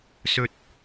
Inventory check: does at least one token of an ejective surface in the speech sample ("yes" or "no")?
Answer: no